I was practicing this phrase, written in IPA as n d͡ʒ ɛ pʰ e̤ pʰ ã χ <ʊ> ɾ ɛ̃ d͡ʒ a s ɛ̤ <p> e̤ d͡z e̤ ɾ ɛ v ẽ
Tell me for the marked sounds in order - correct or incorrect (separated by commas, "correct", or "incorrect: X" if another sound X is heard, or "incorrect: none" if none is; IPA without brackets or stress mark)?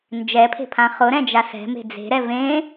correct, incorrect: m